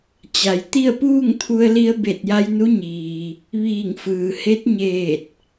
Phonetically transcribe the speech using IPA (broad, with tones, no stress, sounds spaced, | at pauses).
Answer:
t͡ɕ a˩ j t̪ i˥˨ ə̯ p uː˥˨ ŋ t̪ʰ u˧ ə̯ l i˧ ə̯ b e˧˩ t̚ j a˧ j n u˧˥ ɲ iː˩ | ʋ iː˧˩ ŋ f ɯː˩ h e˧˥ t̚ ɲ eː˧˩ t̚